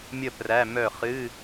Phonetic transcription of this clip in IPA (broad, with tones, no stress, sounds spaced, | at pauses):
mʲ ə˥˨ p r æ˧˥˧ m œ˥˨ χ ɨ˧˥˧